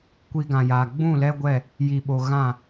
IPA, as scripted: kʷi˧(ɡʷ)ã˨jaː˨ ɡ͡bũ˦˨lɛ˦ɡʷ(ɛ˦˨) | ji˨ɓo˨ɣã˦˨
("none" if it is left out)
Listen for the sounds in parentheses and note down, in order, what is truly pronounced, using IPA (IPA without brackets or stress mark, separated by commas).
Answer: ɡ, ɛ˦˨